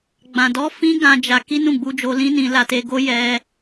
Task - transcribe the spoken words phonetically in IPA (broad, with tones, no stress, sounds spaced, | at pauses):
ɡ͡b ã˨ d ɔ˧ f ĩ˦ ɡ ã˧ d͡ʒ a˧ k i˦ n ũ˦˨ ɡ͡b u˧ d͡ʒ o˧ l ĩ˦ n ĩ˧ l a˧ t e˧ ɡ o˦ j ɛ˦